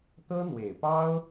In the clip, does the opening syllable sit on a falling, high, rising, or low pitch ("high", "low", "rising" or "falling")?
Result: high